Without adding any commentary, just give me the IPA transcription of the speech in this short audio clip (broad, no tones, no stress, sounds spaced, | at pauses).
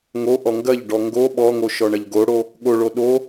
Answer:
ŋ o ʔ ɔ ŋ ɡ ɐ ʎ ɖ ɔ ŋ ɡ o ɓ ɔ ŋ o ʃ ɔ ɳ ɐ ʎ ɡ o ɽ o | ɠ o ɭ o ɗ o